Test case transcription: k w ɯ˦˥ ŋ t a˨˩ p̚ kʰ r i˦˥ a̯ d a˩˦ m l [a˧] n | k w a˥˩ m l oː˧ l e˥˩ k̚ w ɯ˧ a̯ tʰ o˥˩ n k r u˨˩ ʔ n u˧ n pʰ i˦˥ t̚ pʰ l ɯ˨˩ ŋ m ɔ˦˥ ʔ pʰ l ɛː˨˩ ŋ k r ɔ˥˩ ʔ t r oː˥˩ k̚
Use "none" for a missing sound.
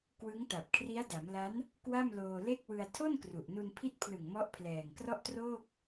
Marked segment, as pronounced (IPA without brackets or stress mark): a˦˥